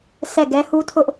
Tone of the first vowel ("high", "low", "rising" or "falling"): falling